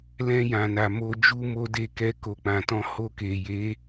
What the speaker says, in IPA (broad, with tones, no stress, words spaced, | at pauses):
lɛ̃˧jã˨na˨mo˧ d͡ʒu˧mo˧de˧kɛ˧ ko˧k͡pã˧tɔ̃˦ ho˧ke˨je˨˦